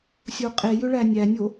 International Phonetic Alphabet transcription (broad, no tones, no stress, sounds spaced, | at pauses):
sʲ o qʼ e j ʏ ɭ æ nʲ æ nʲ o